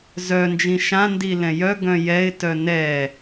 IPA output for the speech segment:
z œ n d͡ʒ ĩ ʃ ã n d i l ɛ̃ j œ ɡ œ̃ j ɛ ɪ̯ t œ n ɛ

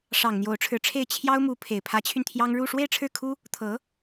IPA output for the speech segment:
ʂ ɑ˨˩ ŋ n̪ j o˧˥ ʊ̯ ʈ͡ʂʰ ɻ̩˧˥ ʈ͡ʂʰ e˥˩ ɪ̯ t͡ɕʰ j ɑ˥ ʊ̯ m u˧˥ pʰ e˨˩ ɪ̯ pʰ ä˧˥ t͡ɕʰ y˧ n t̪ʰ j ɑ˥ ŋ ɻ u˥˧ ʂ w e˥˧ ɪ̯ ʈ͡ʂʰ ɻ̩˥˩ kʰ u˥ | t̪ʰ ɤ˧˥

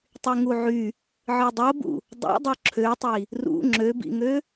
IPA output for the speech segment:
tˤ y ŋ u ʕ y | ʕ ɯ dˤ o b ṵ | dˤ ṵ dˤ o ǁʰ ø tˤ i | r ṵ ŋ͡ǁ ø b ḭ ŋ ø

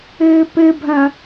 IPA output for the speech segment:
ɘː p ɘ bʱ ɐ̃

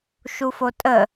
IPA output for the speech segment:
ʃ u f o tʼ ə

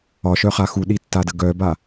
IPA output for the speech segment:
ɒ ʃ œ χ a x u ɗ i tː a d ə ɡ œ b a

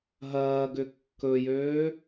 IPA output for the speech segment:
ɦ ɐː ɡ ʏ kː ɵ j øː

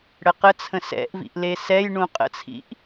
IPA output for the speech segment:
ɽ ə q ə t͡sʰ ə̃ s ɛ̰ ʔ v ḭ ʔ l e s ɛ j ɳ ũ qʼ ə̰ t͡sʰ ḭ ʔ

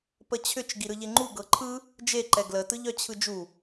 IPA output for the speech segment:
p ə t͡ɕʰ ʏ t͡ʃ ɡ i ɾ ɯ ʎ e ŋ͡ǃ u ɡ ɤ ǃʰ ɯ | d͡ʒ e ǃ ɛ ɡ l ə t ɯ ʎ œ t͡ɕʰ ɯ d͡ʒ u

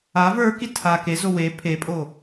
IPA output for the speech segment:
a v ə˞ k i tʰ a k e z o w e pʰ e pʼ o

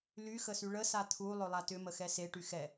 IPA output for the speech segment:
l y x ə s y ɭ ə s a t̪ʰ u lˠ ɵ lˠ a t ʏ m ə x ɛ s e ʈ y x ɛ

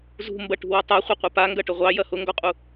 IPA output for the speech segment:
z ṳ m b ɐ ʈ ṳ w ɑ tˤ a χʷ ɛ qʷ ɐ p a ŋ ɡ ɐ ʈ ʊ ʁʷ ɑ j ɐ h ʊ ŋ ɡ ɔ qʼ u

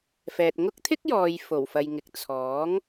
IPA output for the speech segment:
f ɛː˨ t̚ ŋ ʊ˥ k̚ t̪ʰ ɪ˥ k̚ j ɔː˨ j f o˨˩ w f ɐ˨ j ŋ ɪ˨ k̚ t͡sʰ ɔː˨˥ ŋ

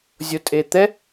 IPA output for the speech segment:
zʲ o tʼ e t̪ ɛ

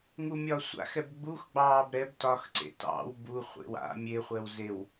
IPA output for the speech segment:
ŋ u mʲ ɒ sʷ a̰ x ɛ b ɡ͡b u x ɡ͡b ɑː b ɾ ɛ b t ɒ x ǀ ḛ t ɑ̰ w b u χʷ ḛ w a̰ mʲ e χʷ ɛ w z e w

